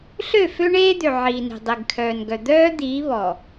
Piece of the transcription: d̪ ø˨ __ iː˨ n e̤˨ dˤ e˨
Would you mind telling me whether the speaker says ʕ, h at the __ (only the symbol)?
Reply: ʕ